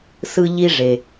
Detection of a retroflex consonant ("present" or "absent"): present